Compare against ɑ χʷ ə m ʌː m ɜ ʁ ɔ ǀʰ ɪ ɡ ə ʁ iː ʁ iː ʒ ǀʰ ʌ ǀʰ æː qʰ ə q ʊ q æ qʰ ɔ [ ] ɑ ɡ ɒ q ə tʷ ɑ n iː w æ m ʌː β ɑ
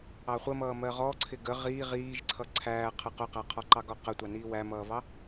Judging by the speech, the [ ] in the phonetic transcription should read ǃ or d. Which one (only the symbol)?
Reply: ǃ